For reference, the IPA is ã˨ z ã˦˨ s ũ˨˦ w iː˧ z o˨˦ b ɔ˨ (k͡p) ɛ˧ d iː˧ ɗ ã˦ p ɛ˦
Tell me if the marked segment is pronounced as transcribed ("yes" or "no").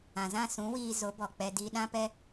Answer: yes